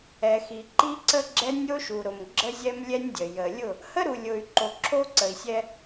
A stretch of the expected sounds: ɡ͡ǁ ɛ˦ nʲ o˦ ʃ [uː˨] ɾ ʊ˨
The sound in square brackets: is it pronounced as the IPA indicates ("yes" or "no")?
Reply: no